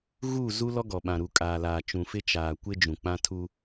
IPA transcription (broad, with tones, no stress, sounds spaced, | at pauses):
ɣ uː˦˨ z u˦ l ɔ˦ ɡ ɔ˨ ɓ ã˨ ɾ u˨ kʼ aː˨ l aː˨ t͡ʃ ũ˨ f ɪ˦ t͡ʃ aː˨ kʷ ɪ˦ d͡ʒ ũ˨ k͡p ã˦ tʰ u˦